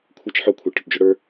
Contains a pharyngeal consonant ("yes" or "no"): yes